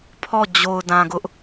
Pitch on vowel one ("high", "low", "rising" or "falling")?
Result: falling